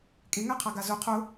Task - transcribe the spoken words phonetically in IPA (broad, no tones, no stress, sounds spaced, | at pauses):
kʼ e ŋ æ qʰ a ɡ a z ʊ qʰ ʊ